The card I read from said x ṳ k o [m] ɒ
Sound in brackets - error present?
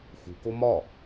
no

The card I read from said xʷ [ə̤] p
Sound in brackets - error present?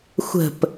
no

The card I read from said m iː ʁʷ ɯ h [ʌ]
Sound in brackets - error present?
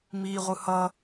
no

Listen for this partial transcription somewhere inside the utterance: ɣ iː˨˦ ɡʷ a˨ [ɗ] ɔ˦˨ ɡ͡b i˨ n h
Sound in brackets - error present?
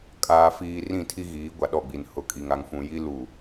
no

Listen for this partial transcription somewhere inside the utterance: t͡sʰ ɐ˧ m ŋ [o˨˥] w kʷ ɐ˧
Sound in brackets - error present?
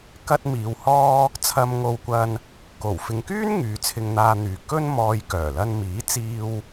yes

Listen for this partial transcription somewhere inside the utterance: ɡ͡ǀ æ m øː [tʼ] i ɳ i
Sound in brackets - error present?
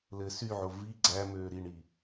yes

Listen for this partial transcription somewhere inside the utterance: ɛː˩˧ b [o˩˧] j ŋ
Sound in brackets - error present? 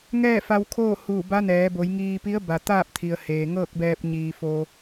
no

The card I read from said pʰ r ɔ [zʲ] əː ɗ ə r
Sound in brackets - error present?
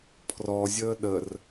no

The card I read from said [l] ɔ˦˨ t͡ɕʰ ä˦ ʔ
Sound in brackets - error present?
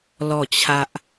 no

